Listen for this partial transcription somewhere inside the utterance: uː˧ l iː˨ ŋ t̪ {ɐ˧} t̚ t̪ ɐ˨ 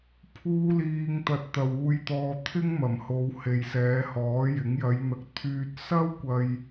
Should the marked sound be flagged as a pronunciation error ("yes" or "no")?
yes